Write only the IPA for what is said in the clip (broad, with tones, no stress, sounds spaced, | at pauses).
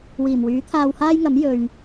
w iː˨˩ m w yː˨˥ t̪ʰ aː˧ w h aː˥ j ŋ ɐ˨˥ m j ɵ˨ ɥ